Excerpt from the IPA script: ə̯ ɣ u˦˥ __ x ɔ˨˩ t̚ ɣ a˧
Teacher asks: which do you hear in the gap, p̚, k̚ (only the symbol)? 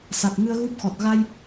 p̚